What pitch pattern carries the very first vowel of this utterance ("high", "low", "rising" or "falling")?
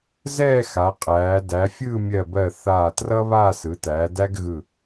falling